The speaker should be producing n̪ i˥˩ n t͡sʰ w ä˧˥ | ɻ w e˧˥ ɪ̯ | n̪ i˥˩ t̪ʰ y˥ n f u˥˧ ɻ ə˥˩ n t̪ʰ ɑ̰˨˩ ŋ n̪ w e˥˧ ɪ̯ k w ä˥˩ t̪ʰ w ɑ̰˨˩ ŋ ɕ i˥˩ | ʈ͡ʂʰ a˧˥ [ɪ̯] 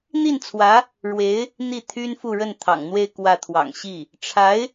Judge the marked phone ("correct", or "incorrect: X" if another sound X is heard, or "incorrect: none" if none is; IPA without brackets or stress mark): correct